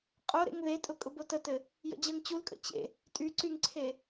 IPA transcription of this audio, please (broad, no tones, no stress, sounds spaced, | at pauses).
qʼ o ɾ ḛ ŋ ð e tʼ ʊ kʼ ʊ b o t ə t ɘ | j ə̰ d͡ʑ ɜ ŋ t͡ɕ u l kʼ ə̰ t͡ɕ ḛ | tʼ y ǀ y ŋ ǀʰ e